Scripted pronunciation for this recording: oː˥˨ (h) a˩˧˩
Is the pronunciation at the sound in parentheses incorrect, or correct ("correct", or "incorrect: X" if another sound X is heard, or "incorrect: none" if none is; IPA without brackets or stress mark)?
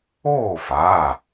incorrect: f